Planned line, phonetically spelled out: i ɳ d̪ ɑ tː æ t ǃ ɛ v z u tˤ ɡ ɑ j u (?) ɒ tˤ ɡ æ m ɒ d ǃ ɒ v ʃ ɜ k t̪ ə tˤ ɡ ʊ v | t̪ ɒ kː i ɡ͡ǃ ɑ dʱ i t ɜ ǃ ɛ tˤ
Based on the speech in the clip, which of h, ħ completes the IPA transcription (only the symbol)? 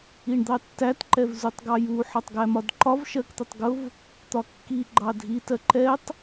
ħ